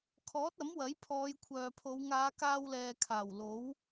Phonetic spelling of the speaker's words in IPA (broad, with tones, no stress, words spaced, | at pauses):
kʰɔː˨˥t̚ɐ˨˥m wɐ˨˥jpʰɔː˨˧jkʷʰœː˨pʰo˨˧w ŋaː˨˧kaː˧wlɛː˨ kʰaː˨˩wlo˨˥w